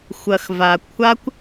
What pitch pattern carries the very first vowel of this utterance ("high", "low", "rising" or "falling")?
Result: low